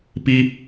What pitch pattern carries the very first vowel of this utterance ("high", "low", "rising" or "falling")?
high